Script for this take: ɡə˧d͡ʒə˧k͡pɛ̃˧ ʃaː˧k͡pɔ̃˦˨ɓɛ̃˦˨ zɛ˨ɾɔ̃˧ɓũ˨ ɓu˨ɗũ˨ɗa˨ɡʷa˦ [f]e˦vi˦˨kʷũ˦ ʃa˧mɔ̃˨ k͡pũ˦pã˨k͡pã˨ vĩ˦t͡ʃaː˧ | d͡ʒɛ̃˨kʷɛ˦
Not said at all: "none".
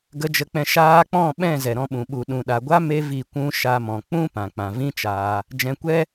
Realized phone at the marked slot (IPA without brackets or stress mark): m